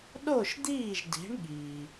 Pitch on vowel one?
falling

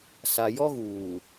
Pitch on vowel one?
low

